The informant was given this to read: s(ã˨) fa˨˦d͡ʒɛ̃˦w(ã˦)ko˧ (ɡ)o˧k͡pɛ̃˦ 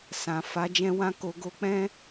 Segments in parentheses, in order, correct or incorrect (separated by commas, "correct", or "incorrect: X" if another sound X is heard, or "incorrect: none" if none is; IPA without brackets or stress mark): correct, correct, correct